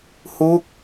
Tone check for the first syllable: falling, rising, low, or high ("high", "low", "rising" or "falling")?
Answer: falling